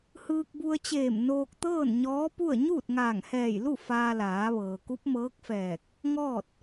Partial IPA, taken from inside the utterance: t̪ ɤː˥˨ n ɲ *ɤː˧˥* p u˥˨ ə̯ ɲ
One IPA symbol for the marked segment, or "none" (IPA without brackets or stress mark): ɔː˧˥